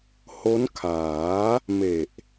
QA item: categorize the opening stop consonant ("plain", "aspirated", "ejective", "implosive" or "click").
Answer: aspirated